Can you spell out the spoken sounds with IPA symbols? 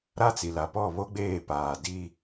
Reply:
ɾ a˦ t͡s i˨ l a˨ p ɔ˦˨ β o˦ ɡ͡b eː˦˨ p aː˨ d iː˦

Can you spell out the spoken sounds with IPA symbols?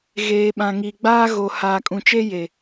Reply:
ɣ eː˨ ɓ ã˨ ŋ i˨ ɡ͡b aː˦ ɣ o˨ h aː˨ kʼ ũ˨ t͡ʃ e˦ j e˨

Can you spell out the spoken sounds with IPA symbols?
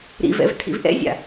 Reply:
ɾ ḭ v ɛ̰ v tʰ ḭ v ʔ ɛ̰ zʲ a̰

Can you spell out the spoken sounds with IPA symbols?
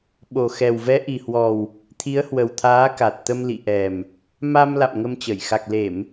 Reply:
ɓ o˨˩ x ɛ˨˩ w v ɛ˨˦ ʔ i˨˩ h w ɔ˨˩ w | t̪ʰ i˨˦ ə̯ h w ə˨˩ w t̪ʰ aː˨˦ k a˨˩ t̚ t̪ ə˧ m l ḭ˧˨ ʔ ɛ˨˩ m | m a˧ m l a̰˧˨ m ŋ ə˧ m t͡ɕ ə˧˩ j x a˨˩ k̚ l e˧˩˨ m

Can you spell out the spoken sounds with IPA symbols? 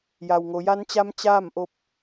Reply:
j a˩ w ŋ o˩˧ j a˧˥ n t͡ɕ a˧˥ m t͡ɕ aː˥˨ m ʔ o˧ p̚

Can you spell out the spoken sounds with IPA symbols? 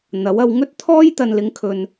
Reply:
n̪ ɐ˨˥ w ɐ˧ w ŋ ɵ˥ t̚ t̪ʰ ɔː˥ j t̪ ɐ˨ n l ɪ˨˧ ŋ kʰ ɵ˨ n

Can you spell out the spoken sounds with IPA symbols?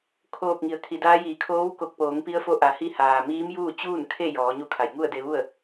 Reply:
kʰ oː˧˩ k̚ ŋ i˩˧ ə̯ kʰ i˩˧ d aː˧˥ j iː˩ kʰ oː˧˥ w k o˧˩ k̚ p oː˩˧ ŋ p i˧˥ ə̯ f o˧˥ ʔ a˩ h i˧ h aː˩ m iː˧˥ m j uː˥˨ t͡ɕ uː˥˨ n kʰ e˥˨ j ɔː˩˧ ɲ u˧˥ kʰ a˩ j ŋ u˥˨ ə̯ d e˧ ʋ u˥˨ ə̯

